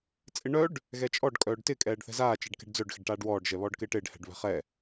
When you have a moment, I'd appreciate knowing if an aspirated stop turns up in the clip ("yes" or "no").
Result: no